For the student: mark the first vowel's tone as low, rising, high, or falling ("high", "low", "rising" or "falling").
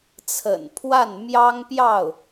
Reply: low